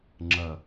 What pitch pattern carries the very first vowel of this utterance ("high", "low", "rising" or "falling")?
low